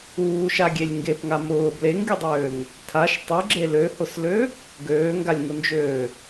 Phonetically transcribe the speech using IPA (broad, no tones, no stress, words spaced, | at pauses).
uːʃaɡʲelʲ ŋɡepŋa mʊː bleŋɡʲɨdˤøːŋ | tʰaʃ tˤuɡ͡ǁe løhʊslø | ɡøːŋɡalʲŋʊnd͡ʒøː